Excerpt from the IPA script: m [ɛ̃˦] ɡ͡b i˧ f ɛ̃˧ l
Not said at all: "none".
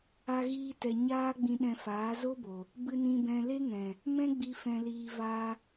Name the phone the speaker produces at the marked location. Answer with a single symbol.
ɛ̃˦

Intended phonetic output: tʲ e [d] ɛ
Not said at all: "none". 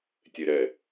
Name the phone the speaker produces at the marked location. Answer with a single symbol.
ɾ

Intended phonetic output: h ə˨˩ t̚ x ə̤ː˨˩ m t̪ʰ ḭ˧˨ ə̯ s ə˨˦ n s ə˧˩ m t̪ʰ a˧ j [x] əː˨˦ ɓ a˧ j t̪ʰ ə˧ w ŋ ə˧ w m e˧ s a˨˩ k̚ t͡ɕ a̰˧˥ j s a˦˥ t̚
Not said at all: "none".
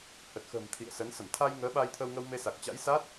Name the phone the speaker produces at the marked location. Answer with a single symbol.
ŋ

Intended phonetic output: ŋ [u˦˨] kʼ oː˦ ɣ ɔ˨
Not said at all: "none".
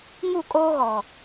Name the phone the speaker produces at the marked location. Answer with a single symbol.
u˦˨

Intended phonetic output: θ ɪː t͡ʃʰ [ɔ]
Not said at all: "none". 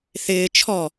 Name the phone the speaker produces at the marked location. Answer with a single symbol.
ɔ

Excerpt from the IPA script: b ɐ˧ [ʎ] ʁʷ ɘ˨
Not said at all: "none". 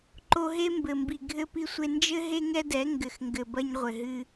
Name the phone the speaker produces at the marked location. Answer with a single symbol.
ɲ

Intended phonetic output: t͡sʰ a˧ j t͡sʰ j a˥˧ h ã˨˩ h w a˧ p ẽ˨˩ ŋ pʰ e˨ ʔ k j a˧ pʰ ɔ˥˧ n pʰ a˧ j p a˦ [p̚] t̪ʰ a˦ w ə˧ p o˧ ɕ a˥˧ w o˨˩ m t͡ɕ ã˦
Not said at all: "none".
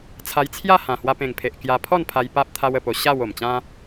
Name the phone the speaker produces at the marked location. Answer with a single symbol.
p̚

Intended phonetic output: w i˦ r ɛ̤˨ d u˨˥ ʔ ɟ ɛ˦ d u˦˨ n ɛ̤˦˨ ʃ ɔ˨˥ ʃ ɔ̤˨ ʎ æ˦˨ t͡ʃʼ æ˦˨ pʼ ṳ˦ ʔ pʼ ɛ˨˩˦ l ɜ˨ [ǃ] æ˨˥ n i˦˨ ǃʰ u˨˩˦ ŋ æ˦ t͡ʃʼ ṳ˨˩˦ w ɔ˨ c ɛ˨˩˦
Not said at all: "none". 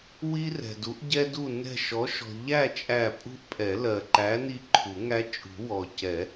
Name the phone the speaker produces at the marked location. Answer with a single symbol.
ǃ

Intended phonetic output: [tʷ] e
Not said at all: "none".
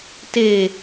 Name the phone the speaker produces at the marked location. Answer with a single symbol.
t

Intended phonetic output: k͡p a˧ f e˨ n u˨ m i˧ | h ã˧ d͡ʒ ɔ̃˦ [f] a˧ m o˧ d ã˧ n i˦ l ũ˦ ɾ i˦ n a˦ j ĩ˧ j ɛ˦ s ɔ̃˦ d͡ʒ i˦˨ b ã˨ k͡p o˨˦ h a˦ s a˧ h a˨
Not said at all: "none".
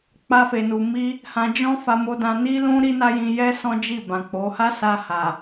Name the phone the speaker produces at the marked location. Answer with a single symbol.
f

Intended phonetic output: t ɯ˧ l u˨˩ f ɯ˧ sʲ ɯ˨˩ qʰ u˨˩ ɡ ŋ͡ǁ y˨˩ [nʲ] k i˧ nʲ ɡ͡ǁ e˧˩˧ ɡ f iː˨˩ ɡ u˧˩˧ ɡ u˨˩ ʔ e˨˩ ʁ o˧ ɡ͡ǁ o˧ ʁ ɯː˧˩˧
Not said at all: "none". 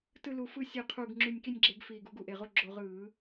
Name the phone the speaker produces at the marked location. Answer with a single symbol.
nʲ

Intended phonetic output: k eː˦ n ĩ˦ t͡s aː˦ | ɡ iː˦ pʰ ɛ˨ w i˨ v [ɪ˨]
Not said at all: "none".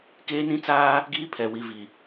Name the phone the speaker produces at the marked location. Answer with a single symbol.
i˨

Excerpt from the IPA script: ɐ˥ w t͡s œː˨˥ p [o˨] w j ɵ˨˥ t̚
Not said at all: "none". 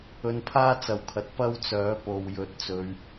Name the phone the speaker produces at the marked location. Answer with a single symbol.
o˨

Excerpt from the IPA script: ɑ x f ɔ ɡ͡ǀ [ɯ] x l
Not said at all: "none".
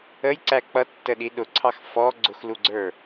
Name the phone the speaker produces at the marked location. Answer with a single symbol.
ʊ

